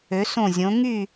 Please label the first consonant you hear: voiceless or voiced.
voiceless